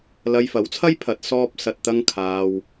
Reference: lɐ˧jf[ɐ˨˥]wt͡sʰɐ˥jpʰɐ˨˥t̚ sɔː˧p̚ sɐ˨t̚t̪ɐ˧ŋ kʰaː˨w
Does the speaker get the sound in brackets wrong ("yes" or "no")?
no